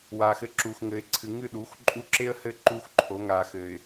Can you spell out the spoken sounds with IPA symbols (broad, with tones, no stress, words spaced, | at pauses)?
waː˨x ɘ˦ ǁuː˨xŋɘ˨ɪ̯ ǀʰɨ˨ŋɨ˦˨ɗuː˨˦x ǃʼu˦ ǁe˦ə̯hɘ˦˨ ǃuː˦xǃʰo˨˦ŋaː˨ xɘː˨ɪ̯